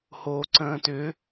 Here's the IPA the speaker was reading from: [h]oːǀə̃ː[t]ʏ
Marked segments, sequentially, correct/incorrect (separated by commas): correct, correct